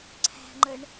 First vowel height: low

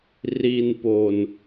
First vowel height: high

